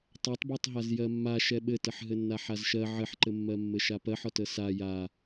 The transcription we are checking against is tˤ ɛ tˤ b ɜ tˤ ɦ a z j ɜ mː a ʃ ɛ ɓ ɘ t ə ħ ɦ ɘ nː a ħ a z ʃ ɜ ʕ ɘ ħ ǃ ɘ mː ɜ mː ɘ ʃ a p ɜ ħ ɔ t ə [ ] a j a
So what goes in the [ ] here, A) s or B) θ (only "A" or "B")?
A